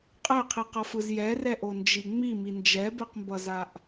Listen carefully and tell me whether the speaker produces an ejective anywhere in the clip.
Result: yes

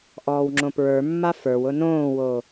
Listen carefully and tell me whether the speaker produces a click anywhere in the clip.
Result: yes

